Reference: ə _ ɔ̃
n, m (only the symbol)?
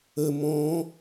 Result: m